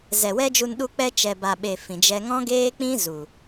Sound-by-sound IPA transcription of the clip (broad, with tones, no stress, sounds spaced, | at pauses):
z ɛ˨ w ɛ˦ d͡ʒ u˧ n ɗ u˧ k͡p ɛ˧ t͡ʃ ɛ˨ b a˨ ɓ e˨ f ĩ˨ d͡ʒ ɛ˧ ŋ ɔ̃˦ ɡ eː˦ k͡p ĩ˦ z u˨